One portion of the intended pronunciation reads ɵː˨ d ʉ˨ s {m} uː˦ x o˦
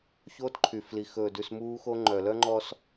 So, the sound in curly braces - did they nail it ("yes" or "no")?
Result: yes